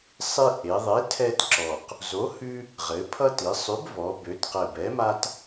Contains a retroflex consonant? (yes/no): no